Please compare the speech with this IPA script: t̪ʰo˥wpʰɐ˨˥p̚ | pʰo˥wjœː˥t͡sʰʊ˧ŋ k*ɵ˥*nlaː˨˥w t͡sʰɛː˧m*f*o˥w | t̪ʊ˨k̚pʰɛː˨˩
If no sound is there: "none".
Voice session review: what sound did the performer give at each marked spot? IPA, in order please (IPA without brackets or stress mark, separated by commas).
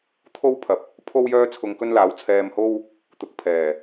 ɵ˥, h